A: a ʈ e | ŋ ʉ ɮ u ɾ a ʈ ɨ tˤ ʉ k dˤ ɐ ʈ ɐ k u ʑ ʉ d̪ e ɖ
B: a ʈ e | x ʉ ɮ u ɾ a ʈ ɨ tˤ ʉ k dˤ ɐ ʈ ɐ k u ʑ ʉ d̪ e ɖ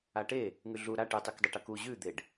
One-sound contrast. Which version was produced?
A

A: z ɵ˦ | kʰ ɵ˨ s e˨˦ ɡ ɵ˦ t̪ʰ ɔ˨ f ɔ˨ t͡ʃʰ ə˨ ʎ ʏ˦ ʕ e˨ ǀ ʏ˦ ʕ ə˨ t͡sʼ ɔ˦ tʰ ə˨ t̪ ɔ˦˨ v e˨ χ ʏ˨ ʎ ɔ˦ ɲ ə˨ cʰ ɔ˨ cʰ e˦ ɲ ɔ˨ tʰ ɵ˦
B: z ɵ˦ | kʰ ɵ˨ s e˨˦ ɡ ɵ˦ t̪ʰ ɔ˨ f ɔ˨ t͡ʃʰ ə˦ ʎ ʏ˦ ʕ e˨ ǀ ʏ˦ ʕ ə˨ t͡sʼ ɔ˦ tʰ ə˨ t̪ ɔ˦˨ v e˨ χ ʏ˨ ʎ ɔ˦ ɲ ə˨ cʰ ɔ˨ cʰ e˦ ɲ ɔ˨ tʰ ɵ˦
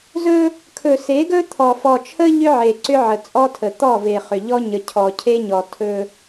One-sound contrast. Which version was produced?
B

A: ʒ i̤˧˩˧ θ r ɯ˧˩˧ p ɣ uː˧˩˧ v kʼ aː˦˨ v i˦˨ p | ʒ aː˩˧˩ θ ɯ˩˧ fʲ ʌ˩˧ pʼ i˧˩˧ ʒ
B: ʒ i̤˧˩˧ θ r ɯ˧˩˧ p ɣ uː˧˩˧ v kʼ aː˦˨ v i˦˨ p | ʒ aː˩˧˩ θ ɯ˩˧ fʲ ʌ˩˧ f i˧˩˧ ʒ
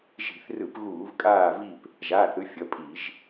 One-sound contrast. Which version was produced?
A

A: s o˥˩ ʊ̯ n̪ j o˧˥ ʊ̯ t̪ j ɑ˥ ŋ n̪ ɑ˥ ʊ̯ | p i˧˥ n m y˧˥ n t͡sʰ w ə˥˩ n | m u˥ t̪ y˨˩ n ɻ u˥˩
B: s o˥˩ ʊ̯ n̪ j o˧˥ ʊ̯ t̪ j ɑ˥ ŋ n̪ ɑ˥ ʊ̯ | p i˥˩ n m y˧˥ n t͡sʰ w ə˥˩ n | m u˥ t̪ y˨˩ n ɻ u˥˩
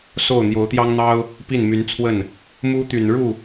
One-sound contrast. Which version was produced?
B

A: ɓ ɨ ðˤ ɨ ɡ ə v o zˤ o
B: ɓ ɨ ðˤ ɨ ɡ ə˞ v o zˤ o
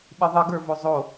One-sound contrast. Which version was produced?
B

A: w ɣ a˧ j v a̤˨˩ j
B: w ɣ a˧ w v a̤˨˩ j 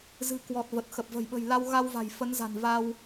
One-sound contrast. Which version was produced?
B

